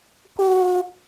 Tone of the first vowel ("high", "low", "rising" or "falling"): high